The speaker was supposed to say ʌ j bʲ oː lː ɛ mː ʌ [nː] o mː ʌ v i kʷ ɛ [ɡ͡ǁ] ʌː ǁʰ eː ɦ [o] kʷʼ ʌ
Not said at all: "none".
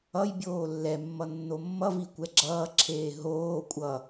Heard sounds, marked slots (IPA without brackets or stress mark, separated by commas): nː, ɡ͡ǁ, oː